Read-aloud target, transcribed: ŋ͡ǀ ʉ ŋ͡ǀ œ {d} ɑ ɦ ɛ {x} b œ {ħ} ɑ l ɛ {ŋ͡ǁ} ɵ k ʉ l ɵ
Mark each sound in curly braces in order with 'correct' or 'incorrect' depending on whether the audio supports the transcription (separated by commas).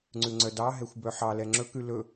correct, incorrect, correct, correct